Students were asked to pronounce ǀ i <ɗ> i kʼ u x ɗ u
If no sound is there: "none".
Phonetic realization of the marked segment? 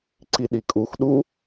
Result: ɗ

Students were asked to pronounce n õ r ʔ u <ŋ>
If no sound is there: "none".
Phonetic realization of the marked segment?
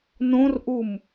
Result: m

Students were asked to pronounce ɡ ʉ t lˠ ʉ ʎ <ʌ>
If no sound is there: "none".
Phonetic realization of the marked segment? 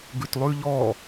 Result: ɔ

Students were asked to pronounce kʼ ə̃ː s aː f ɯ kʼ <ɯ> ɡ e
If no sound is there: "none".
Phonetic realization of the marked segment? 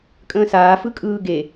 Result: ɯː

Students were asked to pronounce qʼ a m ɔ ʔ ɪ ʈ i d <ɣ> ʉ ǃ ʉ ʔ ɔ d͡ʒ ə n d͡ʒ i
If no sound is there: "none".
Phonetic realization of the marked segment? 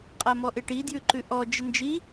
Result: j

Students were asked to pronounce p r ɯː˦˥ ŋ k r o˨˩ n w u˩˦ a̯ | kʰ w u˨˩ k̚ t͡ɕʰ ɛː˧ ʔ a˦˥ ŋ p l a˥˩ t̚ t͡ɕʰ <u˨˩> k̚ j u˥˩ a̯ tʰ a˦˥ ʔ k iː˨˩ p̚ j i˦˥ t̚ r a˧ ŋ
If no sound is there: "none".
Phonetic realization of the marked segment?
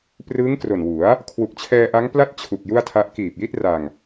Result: u˨˩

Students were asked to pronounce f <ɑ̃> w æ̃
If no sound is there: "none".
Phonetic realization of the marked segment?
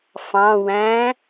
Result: ɑ̃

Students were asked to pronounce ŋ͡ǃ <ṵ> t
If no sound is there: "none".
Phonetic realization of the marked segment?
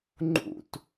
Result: ṵ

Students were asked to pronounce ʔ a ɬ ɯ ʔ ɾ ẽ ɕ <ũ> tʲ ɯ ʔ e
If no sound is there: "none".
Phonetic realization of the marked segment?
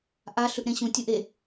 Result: ũ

